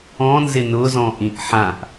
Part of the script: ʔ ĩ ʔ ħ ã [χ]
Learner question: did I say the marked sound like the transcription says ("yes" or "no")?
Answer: no